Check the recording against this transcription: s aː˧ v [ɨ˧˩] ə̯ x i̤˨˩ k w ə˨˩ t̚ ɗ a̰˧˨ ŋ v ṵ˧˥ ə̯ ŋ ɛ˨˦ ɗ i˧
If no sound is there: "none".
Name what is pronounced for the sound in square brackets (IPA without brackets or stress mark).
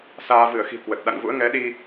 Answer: ɨ˧˩